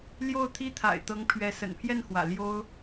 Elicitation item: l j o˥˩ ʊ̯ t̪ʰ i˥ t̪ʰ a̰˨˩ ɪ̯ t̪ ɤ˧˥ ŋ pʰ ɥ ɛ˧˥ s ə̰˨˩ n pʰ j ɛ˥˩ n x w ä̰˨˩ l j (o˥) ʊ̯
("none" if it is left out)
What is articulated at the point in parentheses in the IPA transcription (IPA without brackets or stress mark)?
o˥